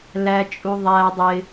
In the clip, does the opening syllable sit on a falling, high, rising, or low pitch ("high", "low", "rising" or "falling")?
low